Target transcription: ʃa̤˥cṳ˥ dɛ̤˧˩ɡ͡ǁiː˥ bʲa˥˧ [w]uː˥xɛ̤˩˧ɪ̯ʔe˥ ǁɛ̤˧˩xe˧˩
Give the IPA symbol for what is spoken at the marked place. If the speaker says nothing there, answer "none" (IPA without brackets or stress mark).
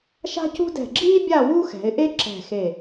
w